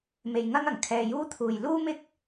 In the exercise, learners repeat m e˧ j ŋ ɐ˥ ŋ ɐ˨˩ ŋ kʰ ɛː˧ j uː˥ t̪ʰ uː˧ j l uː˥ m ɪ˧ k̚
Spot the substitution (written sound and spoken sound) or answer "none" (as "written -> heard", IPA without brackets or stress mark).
none